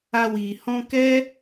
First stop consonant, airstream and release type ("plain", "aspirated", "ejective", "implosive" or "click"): plain